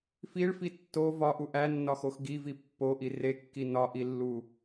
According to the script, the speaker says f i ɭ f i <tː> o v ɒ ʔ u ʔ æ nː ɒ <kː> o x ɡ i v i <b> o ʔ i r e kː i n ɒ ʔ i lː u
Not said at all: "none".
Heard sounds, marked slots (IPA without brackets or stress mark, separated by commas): tː, x, pː